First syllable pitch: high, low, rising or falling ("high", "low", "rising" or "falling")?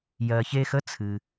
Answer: low